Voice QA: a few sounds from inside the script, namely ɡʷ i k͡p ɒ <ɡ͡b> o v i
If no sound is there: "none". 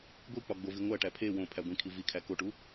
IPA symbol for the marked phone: ɡ͡b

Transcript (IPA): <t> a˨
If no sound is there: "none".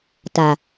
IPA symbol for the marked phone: t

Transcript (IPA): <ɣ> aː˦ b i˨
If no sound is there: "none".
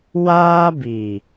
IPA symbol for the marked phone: w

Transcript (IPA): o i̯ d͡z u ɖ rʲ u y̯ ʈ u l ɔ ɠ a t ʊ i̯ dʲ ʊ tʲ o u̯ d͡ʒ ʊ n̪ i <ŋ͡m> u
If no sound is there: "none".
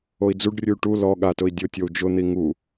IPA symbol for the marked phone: ŋ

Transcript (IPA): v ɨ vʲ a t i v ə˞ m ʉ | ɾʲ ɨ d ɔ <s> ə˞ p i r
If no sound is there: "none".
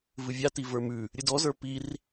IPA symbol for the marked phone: z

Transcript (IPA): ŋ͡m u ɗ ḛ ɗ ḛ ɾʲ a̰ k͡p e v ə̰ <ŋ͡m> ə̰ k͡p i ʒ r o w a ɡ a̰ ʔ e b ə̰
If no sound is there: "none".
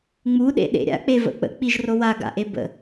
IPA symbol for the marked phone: k͡p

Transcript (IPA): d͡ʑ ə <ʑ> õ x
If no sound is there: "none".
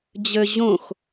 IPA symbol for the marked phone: ʑ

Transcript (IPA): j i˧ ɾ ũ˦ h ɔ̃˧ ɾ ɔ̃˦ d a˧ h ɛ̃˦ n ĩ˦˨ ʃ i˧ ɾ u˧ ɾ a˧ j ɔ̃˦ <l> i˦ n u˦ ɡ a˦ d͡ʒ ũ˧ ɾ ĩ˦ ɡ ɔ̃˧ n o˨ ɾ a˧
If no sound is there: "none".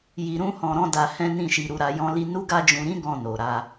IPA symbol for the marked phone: l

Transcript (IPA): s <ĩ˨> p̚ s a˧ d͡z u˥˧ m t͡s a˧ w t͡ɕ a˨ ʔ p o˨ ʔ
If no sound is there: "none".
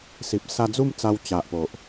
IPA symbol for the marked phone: i˨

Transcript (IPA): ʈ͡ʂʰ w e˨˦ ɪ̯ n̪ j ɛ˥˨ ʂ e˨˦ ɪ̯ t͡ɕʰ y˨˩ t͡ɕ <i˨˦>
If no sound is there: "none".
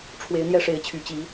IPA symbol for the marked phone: i˨˦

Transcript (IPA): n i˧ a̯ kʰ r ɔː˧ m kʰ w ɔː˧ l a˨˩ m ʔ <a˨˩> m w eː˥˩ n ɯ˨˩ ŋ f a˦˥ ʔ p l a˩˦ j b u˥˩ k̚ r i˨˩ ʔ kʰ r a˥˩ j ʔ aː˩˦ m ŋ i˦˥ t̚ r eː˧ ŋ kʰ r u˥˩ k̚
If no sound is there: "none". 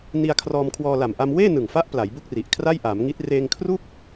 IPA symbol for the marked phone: a˧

